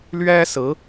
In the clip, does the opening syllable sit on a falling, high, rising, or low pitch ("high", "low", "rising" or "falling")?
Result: high